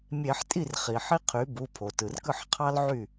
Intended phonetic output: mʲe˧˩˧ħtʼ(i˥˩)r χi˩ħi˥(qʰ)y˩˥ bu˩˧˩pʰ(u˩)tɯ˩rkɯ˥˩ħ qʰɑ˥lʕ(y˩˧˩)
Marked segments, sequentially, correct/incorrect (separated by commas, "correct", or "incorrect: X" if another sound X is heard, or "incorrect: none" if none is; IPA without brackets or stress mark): correct, correct, incorrect: o˩, incorrect: y˥˩